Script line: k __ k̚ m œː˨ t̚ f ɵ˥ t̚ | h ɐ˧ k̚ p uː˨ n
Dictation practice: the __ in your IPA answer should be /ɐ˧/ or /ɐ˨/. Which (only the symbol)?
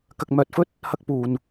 ɐ˨